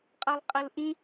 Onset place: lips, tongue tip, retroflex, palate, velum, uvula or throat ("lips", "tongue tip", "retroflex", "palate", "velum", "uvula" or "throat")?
uvula